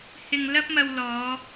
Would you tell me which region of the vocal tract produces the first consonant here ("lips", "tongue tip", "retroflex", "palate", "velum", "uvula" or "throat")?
throat